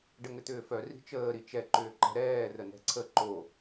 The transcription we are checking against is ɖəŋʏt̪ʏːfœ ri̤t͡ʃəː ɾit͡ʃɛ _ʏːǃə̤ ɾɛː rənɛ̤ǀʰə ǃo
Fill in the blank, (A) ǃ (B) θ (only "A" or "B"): A